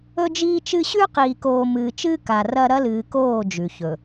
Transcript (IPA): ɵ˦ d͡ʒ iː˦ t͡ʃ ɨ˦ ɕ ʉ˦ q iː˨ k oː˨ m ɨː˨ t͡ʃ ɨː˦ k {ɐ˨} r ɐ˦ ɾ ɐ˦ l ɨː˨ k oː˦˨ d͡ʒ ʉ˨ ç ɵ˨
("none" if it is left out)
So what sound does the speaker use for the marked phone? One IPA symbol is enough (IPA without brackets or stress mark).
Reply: a˨